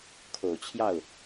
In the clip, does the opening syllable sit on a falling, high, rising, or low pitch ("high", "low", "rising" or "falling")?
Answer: low